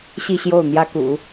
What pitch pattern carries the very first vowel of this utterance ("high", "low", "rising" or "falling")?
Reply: falling